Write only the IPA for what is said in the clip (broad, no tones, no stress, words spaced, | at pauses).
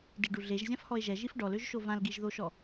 diɖuɮeʒ zʲãfhɔe̯ʒɛ ʒifɖɔløʒʃo vãlɡiʒðoʃɔ